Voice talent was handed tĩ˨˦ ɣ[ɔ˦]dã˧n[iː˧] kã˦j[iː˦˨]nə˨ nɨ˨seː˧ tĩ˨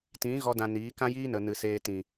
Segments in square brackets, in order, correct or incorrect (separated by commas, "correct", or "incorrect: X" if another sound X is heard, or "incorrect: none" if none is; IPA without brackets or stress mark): correct, incorrect: iː˨˦, incorrect: iː˦